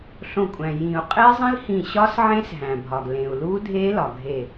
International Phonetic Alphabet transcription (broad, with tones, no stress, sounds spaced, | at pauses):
ɬ õ˧˩ kʷʼ æ̃˩ j ĩ˨˩˦ u̯ qʼ e˦˥ zˤ ĩ˦˥ l h ĩ˧˩ ɕ ɒ˦˥ s ʕ ẽ˦˥ s ɦ æ̃˩ bʱ ɒ˩ ɡ l ẽ˩ u̯ l u˦˥ dʱ e˦˥ l ɒ˩ ɡʱ e˧˩